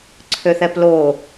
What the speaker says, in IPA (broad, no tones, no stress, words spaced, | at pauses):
ǀʰøθɛploː